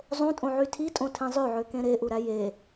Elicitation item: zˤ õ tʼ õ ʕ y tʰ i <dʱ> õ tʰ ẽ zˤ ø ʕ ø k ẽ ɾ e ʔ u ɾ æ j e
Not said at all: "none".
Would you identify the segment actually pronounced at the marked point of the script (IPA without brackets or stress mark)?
tʼ